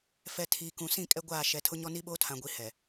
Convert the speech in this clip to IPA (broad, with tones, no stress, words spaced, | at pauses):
fɛ˨ tʰiː˨kũ˨ sĩ˦˨ kʼɛ˦ɡʷaː˦˨ ʃɛ˨tʰʊ˦ ɲɔ˦ni˦ ɓoː˦tʰã˨ɡʷi˨ hɛ˨